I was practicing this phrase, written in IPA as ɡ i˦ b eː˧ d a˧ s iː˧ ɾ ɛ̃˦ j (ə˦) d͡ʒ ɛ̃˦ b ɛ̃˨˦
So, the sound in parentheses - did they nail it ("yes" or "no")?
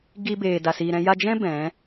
no